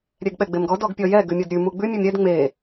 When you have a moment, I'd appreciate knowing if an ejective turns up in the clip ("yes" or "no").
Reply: no